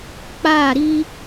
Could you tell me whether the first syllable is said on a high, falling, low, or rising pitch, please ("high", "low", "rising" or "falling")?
falling